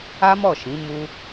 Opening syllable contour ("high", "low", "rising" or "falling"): high